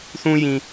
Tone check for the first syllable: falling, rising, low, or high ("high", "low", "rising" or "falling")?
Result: high